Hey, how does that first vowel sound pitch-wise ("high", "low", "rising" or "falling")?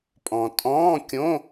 low